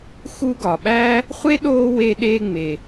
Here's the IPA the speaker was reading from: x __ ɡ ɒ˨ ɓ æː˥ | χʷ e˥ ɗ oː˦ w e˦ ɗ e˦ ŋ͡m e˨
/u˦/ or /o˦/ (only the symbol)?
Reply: u˦